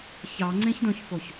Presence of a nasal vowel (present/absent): present